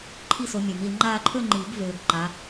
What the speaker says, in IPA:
ǃʰi˥˧so˨˦ mʲø˨˩˦mi˨˦l ŋ͡ǃaː˥˧ ǃʰø˥˧ŋ͡ǃiː˨˩˦ɡvøː˨ɡ ǃa˨˦

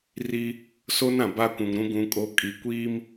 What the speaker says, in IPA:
ri˦ | so˦nã˨ ba˦kʷũ˨ŋɾũ˦ ɡũ˦kʼo˦ kʼi˨ kʷiː˦m

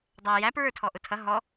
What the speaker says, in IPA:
dˤæ jæpɹə˞tʰɔ ʔʊtʰʌ ɦɔ

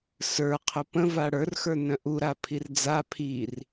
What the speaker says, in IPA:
sə˞qʰʊ pə̃va ɽə˞rxə˞nœ̃ ʔuɾapʰir d͡za pʰir

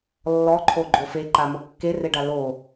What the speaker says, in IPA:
lːɔǃʰoɡ͡ǃo feǃamo kːereɖa lo

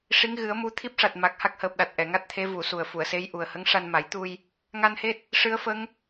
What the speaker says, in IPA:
ʂi˧˥ŋɣɨ˨˩˦ə̯mu˧˥ t̪ʰi˦˥p̚ʂa˨˩t̚ ma˨˩k̚ha˦˥k̚həː˨˩p̚ɗa˨˩t̚ ʔɛ˨˩˨ŋa˦˥t̚t̪ʰe˧˥ vu˨˩˨su˨˩ə̯ fu˨˩˨ə̯se˧˥jʔu˨˩ə̯ hə˧˥ŋʂa˧nma˨˩˦jt̪u˧j | ŋa˧nhe˦˥t̚ | ʂɨ˧˥ə̯fə˧˥ŋ

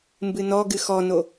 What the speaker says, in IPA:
mbɨnɔɡɨ xɔno

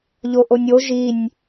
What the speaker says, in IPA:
ʎoʔonʲo ʒinʲ

